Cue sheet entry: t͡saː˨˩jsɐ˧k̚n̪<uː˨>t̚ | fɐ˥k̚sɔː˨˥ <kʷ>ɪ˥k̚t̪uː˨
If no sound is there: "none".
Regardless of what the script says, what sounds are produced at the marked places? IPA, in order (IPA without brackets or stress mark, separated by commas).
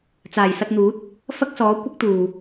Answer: uː˨˥, kʷ